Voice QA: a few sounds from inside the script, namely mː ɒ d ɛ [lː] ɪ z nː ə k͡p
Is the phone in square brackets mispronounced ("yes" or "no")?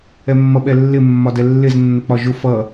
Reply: no